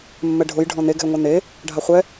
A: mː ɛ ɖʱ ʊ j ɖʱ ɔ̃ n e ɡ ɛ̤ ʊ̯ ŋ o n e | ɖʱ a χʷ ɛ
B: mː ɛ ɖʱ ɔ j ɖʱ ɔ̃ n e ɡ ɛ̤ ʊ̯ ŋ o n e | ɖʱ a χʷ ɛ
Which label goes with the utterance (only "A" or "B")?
A